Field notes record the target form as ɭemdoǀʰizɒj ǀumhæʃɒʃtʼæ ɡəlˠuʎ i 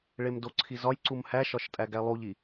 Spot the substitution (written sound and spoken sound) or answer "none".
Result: ə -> æ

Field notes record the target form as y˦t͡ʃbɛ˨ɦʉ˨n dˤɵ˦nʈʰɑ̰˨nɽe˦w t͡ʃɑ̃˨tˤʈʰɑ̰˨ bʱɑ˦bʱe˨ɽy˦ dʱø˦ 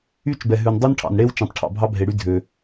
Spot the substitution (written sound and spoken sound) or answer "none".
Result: none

